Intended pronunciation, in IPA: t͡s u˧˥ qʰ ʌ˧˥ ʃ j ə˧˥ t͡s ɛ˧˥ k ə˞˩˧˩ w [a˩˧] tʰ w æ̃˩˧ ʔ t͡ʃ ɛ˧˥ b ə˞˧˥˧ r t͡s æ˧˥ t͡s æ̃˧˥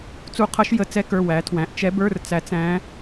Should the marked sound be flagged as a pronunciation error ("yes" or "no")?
yes